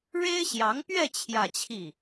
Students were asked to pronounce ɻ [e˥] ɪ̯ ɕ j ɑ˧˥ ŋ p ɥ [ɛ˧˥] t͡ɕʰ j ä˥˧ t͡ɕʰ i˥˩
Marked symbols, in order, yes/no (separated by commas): yes, no